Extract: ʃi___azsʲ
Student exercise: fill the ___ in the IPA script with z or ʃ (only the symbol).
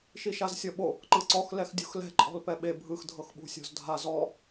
ʃ